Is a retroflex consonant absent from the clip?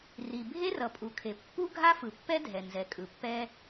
yes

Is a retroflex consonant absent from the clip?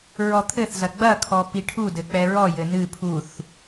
no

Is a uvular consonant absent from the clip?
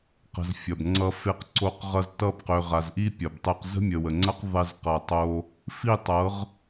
no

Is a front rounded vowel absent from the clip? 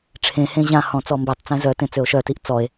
no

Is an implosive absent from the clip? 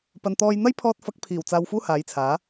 yes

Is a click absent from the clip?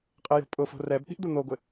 yes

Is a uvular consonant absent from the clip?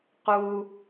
no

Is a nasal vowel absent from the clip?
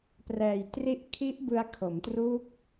yes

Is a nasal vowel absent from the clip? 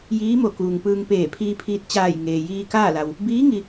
yes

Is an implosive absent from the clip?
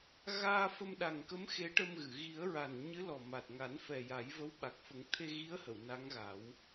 no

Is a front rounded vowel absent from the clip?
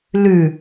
yes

